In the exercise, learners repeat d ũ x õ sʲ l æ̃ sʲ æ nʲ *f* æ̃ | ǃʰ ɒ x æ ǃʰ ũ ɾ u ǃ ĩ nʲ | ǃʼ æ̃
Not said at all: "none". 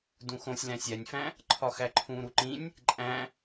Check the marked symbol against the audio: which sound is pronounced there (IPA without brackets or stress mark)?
f